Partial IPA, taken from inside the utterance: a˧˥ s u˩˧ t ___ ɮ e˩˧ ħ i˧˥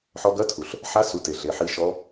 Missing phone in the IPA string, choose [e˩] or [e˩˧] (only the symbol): e˩